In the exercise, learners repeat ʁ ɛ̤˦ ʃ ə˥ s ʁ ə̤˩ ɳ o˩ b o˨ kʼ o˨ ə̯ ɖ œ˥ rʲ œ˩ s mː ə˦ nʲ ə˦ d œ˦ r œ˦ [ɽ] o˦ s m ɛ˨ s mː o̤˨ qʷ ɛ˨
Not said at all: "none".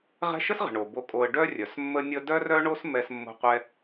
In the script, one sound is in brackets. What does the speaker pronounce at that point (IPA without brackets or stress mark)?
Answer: ɳ